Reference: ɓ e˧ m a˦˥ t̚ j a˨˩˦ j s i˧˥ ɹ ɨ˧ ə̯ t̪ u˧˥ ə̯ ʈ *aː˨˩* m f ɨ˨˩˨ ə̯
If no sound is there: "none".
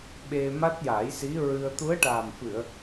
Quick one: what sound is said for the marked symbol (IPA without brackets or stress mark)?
aː˨˩